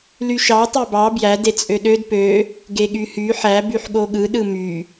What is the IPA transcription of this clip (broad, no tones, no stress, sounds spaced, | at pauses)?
l y ʃ ɑ tˤ ø b ɑ b j æ d e t͡sʼ ø ɗ ø d p ø | ɡ e ɠ y h y ħ æ b y ħ ɠ o ɠ ɯ ɗ ɯ m y